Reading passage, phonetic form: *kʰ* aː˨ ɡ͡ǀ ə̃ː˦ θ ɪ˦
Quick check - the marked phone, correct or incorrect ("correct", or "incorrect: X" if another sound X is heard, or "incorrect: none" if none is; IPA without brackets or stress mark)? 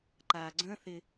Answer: incorrect: ǃ